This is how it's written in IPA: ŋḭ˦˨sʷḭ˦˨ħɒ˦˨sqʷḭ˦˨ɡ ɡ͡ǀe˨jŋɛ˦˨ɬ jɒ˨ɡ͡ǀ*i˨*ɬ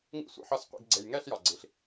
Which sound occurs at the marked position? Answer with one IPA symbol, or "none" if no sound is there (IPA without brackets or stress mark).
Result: i˨